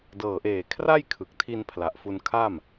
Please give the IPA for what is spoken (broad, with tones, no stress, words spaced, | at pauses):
dɤː˨˩ʔeː˨˩ kʰra˥˩jkʰɯ˨˩k̚tʰi˧n pʰla˨˩ʔfu˧nkʰa˥˩m